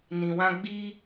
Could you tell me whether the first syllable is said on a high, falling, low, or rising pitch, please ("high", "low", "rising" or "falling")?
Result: low